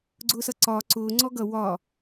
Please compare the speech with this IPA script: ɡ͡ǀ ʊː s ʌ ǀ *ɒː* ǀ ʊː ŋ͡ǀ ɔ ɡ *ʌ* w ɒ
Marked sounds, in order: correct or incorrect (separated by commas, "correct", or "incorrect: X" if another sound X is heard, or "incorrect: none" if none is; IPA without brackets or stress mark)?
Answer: correct, correct